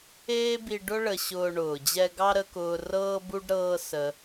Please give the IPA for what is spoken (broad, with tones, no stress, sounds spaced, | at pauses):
eː˦ b i˧ ɖ ʊ˦ ɭ ə˧ ɕ ʊː˧ ɳ ʊː˨ d͡ʑ ɛ˧ ɡ ɑ˦ ɾ ə˧ k ʊː˧ r ɤː˧ b u˧ ɖ ɾ ɤː˧ s ə˧